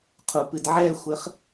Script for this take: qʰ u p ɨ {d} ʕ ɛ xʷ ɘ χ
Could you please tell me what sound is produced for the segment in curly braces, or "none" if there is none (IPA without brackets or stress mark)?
d